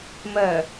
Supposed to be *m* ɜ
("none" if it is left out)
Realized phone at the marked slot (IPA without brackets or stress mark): m